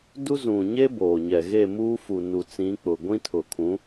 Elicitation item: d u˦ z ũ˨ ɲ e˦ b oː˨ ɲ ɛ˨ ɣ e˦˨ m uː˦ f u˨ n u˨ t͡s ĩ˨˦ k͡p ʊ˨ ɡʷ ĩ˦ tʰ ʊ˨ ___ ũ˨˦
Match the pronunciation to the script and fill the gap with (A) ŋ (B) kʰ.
B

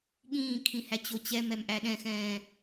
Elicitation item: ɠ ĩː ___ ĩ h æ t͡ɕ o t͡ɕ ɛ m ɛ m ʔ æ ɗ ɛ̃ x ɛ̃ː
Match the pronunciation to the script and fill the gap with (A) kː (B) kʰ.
B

